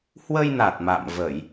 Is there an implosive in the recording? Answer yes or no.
no